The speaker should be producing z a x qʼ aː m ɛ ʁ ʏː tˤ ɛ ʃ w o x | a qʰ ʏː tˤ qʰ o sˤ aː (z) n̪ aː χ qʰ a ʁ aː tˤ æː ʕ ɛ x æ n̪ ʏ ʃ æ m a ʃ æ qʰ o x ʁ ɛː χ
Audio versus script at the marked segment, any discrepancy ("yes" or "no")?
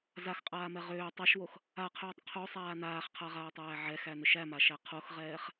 yes